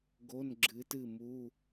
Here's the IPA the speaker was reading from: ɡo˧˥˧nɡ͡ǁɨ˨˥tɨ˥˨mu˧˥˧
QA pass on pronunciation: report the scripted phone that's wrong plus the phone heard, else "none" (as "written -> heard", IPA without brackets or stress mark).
none